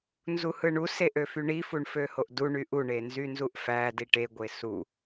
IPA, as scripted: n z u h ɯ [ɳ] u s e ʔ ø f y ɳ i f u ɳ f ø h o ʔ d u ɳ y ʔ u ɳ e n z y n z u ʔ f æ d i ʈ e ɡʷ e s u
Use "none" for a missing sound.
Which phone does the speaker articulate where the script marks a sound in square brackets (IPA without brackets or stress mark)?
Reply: ɳ